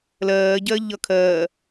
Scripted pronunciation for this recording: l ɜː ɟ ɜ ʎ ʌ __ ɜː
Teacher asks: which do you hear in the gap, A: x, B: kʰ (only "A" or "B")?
B